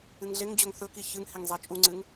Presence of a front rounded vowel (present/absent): absent